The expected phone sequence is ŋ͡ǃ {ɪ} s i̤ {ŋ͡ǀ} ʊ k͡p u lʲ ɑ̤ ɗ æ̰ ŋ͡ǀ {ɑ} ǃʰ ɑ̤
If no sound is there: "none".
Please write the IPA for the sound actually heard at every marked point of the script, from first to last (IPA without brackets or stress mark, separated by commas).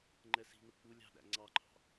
ɛ, n, ɑ